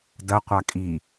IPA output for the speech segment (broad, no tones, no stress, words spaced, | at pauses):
dɐ qʷakʼi